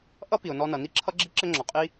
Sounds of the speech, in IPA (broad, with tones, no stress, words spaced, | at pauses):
ʔʌ˥ pi˩ʊ̯nɔ˧nʌ˩ ni˥ǁʰʌ˥ɡ͡ǁi˥ ǁɘ˥ŋ͡ǁɔ˩qʼi˥